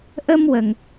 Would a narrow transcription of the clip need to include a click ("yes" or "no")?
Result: no